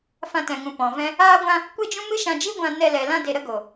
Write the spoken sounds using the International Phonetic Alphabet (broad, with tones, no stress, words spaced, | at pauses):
fã˧tɛ̃˨ŋũ˨ pɔ̃˨vɛ̃˦ | aː˦ɡʷã˦ | kʷe˦d͡ʒũ˦ mɨ˦ʃã˧d͡ʒi˦ ɡʷã˧nɛ˧lɛ˨ lã˦de˧ɾə˦ɡo˨